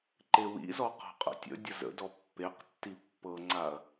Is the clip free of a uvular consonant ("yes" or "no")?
no